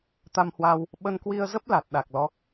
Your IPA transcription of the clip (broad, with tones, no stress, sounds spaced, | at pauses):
t̪ a˧ m h w aː˧ w | ɓ ə˧ n k w i˧ ə̯ z ə˦˥ p̚ l a˨˩ t̚ ɗ a˨˩ k̚ l ɔ˨˦